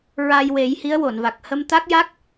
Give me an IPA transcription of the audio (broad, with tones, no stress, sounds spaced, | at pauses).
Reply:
ɹ a˧ j w e˨˩˦ j h i˧˥ ə̯ w o˨˩˨ n v a˨˩ k̚ h ə˧ m t̪ a˦˥ k̚ j a˦˥ k̚